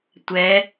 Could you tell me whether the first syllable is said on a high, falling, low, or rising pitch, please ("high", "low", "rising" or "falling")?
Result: rising